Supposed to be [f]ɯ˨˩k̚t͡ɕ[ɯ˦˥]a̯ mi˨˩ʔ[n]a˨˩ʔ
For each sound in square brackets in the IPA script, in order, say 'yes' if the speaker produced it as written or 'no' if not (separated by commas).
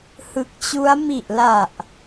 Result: no, no, no